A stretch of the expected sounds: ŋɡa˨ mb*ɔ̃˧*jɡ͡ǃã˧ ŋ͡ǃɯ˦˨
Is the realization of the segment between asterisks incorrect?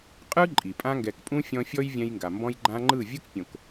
no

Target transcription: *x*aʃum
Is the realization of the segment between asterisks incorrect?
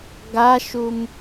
yes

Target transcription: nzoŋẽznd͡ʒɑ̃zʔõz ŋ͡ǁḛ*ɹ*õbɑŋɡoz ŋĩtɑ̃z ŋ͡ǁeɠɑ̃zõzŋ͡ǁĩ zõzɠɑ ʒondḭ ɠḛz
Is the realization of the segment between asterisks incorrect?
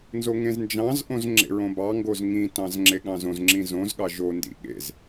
no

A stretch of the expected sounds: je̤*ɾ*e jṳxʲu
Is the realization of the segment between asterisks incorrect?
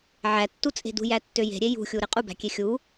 yes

